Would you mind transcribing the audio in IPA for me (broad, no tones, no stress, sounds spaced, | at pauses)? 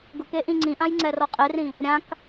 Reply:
ɡ ʊ k e ʔ ĩ ŋ͡ǀ ĩ ʔ ã j ŋ͡ǀ ɛ r ɔ qʼ e r ĩ | ɾʲ ã k